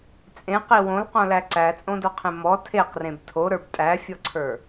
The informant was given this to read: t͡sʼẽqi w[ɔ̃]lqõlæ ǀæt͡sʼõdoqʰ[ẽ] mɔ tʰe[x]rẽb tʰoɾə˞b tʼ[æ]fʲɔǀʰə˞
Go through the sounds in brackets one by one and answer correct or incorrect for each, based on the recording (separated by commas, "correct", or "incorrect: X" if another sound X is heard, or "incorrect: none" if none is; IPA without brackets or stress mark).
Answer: incorrect: õ, correct, incorrect: q, correct